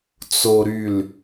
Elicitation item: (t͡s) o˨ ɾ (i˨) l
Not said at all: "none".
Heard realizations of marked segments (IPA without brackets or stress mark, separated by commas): t͡s, y˨